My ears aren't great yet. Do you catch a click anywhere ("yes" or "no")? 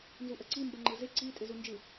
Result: yes